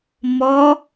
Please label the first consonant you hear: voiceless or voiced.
voiced